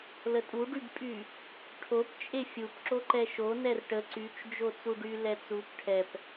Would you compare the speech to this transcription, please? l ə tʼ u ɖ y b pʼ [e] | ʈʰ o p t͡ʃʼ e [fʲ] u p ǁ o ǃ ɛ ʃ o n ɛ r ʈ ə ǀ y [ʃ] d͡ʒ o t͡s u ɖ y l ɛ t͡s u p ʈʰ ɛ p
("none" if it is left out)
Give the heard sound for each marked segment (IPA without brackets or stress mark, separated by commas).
y, fʲ, t͡ʃ